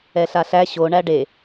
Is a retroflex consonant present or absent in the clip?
present